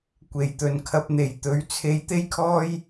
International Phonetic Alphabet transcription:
kʷ e˨ j t̪ ɵ˨ n kʰ ɐ˧ p̚ n̪ e˨ j t̪ ɵ˨˧ ɥ t͡sʰ e˧ j t̪ e˧ j kʰ ɔː˧ j

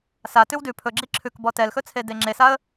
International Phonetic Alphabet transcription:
s a t ʉ w d ʉ pʰ ɵ ɡ͡ǁ i ǁʰ ʉ k b ɔ t ɛ l x ɵ t͡sʰ e d e ŋ͡ǁ e s a ə̯

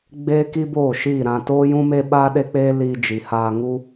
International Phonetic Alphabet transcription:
ɡ͡b eː˦ k i˦ b oː˦˨ ʃ iː˦˨ ɾ ã˧ t oː˦ j ũ˦ m e˦ ɓ aː˦ ɗ e˦ k͡p eː˦ l iː˧ d͡ʒ i˨ h aː˧ ŋ u˦

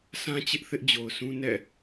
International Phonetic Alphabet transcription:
sʰ ã˦ t͡ɕ ɪ˦ ʔ θ ɪ˦ ʔ d͡ʑ o˨ ʊ̯ sʰ ũ˦ n ɛ̰˦˨

